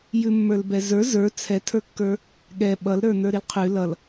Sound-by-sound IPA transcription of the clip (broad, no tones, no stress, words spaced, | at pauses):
jʉmːə˞lbɛzə˞ zə˞ t͡sʰɛtʰə˞kːə˞ | ɠɛ ɓʌlɾə˞ nə˞ɾilqʰʉ lʌl